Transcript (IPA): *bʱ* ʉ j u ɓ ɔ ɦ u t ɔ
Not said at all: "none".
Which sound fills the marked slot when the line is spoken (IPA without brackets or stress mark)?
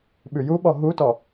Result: ɓ